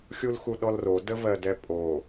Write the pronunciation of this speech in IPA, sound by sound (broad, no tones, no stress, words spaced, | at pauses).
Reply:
xʲulxuɗɔlro dəvɜdɛpʼo